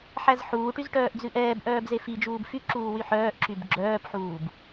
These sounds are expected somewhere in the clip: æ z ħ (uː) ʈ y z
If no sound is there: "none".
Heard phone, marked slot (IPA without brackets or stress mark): uː